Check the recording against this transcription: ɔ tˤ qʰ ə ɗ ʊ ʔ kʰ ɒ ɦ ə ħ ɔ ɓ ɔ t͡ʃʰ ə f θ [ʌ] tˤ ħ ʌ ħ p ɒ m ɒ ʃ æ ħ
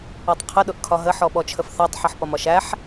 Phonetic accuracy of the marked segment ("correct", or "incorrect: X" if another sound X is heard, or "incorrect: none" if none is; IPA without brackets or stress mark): incorrect: ɑ